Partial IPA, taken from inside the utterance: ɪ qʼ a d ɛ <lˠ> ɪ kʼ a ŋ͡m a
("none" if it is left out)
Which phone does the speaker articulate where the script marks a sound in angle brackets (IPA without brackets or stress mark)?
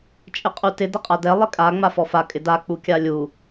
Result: lˠ